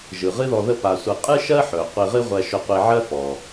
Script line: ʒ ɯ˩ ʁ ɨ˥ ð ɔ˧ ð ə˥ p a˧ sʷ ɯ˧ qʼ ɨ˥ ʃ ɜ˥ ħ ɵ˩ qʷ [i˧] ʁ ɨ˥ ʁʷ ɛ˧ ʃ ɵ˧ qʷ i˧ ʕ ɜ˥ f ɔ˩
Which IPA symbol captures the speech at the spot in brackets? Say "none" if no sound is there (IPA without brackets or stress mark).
i˧